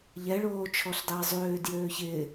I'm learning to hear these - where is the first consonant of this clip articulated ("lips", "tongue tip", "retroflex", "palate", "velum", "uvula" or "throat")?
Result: palate